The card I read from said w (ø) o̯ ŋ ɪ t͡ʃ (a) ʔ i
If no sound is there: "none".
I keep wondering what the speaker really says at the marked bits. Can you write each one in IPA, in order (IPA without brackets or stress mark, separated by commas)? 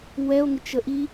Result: ɛ, ə